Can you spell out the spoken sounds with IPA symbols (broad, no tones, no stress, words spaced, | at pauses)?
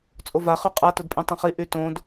t͡sʼova χyqʼa tʊdpʼĩtˤõχi ʔytõd